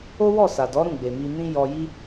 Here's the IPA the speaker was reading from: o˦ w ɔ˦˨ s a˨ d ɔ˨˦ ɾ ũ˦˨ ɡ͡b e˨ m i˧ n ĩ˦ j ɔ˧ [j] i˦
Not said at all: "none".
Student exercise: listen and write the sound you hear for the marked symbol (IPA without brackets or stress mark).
j